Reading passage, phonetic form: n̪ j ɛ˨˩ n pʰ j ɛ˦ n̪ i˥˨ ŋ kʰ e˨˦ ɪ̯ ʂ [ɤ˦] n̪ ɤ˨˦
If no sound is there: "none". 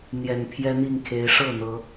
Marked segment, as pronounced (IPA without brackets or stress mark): ɤ˥˨